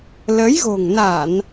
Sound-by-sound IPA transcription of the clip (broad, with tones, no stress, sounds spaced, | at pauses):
l ə˨˦ j ɣ o̤˨˩ ŋ n a˧˩˨ n